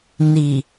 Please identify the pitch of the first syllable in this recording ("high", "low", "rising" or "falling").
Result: low